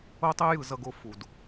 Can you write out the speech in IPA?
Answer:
o˦tˤe˦ jɯ˩zʌ˨ ɡo˨ fu˩d

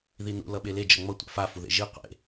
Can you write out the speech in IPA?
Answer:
ðinṵ lʌɓele d͡ʒʌŋ͡mʌ tʷa̰fa fuðḛʒi qʷḛ

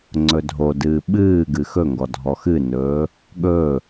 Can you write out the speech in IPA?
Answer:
ŋ͡ǀɵdʱodɨː ɓɨːɡɨ xɵŋɡɔ dʱɔxɨnɵː | ɠɵː

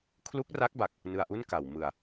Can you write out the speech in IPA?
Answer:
kʰlu˦˥k̚ra˦˥k̚ba˨˩k̚ | nɯ˧a̯ʔu˥˩nka˨˩w mɯ˧a̯

